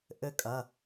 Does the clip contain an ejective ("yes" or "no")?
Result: yes